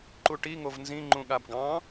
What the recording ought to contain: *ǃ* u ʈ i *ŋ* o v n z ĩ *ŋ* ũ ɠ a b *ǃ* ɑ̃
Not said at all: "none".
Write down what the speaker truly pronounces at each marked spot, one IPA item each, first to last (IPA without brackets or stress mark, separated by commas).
ǃ, ŋ, ŋ͡ǃ, ɡ